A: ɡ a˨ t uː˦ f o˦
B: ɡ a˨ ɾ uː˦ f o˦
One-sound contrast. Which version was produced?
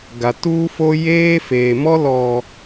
A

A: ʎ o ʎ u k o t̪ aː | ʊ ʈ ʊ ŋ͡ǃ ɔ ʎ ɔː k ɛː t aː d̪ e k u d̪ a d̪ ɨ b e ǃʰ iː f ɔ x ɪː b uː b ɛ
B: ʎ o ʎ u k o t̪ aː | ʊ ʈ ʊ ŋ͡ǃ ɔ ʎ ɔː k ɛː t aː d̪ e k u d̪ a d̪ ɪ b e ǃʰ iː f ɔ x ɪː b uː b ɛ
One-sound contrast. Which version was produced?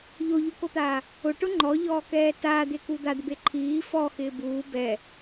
B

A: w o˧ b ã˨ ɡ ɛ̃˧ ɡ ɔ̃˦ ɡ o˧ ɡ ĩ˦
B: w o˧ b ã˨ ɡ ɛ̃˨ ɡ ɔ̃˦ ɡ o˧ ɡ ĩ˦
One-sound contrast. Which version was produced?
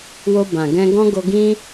A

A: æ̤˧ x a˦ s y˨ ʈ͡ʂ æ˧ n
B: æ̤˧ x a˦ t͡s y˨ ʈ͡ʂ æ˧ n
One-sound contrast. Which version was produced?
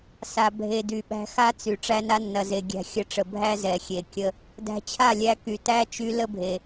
B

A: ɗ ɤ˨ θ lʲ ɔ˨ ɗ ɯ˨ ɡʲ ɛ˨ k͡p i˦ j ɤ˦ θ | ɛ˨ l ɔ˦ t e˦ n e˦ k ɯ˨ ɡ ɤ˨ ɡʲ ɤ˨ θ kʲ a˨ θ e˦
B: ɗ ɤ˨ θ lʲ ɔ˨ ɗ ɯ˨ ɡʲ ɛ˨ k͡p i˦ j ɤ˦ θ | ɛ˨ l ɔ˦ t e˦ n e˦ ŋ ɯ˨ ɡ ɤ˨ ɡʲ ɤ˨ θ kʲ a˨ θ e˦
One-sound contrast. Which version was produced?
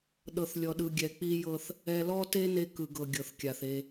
A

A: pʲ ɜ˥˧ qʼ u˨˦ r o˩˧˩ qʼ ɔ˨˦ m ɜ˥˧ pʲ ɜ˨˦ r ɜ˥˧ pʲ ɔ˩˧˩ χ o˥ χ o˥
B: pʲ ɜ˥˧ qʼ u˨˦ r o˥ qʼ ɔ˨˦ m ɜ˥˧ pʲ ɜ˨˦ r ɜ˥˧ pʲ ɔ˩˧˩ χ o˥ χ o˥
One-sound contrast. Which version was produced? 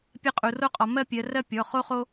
B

